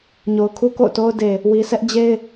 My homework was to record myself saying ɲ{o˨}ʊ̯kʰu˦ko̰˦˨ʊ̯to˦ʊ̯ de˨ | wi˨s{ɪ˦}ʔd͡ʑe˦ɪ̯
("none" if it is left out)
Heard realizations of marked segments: o˨, ɛ˦

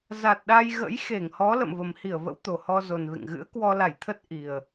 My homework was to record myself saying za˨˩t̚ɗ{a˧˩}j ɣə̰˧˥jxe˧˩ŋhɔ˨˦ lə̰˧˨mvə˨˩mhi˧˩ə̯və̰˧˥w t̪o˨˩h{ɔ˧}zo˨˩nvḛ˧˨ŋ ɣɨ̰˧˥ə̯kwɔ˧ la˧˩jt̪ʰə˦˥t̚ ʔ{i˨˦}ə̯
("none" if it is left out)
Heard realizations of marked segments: a˧, ɔ˧, i˨˩

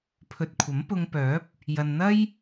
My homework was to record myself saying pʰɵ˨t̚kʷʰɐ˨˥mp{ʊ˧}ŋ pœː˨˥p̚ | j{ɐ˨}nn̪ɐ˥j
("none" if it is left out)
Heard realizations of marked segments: ʊ˧, ɐ˨

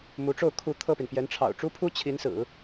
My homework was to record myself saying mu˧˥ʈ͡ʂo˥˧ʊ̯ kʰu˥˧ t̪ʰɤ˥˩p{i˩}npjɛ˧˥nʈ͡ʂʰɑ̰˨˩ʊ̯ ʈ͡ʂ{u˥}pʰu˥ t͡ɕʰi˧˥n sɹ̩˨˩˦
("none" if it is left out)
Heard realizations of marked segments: i˩, u˥

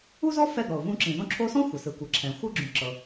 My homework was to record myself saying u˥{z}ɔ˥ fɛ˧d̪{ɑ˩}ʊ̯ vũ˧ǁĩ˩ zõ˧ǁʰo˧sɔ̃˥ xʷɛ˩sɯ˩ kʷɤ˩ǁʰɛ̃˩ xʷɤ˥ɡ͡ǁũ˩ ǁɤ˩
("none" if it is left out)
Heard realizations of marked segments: z, ɔ˩

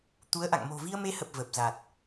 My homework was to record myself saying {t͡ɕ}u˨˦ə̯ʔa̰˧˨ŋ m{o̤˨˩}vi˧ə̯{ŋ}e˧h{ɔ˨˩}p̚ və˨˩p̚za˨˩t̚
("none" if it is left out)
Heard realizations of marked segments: t̪, o̤˨˩, m, ə˨˩

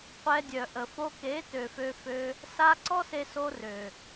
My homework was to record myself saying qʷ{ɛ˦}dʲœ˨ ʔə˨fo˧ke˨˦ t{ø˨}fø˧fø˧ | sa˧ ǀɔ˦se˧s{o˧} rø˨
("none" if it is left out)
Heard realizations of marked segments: ɛ˧, ø˨, o˧

